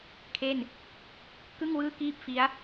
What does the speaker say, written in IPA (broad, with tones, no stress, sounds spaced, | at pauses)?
kʰ e˥˩ n | k ɯ˥˩ ŋ w ɯː˥˩ k iː˥˩ p̚ f i˦˥ a̯